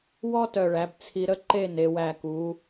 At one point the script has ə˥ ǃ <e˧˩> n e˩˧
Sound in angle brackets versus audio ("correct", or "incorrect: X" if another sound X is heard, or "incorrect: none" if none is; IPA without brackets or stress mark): incorrect: e˥˧